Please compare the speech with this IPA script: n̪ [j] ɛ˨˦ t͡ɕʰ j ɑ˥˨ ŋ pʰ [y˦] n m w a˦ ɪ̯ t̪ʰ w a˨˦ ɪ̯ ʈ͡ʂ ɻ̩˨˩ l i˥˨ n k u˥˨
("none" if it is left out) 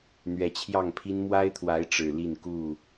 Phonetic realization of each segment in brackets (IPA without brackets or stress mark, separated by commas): ɥ, i˦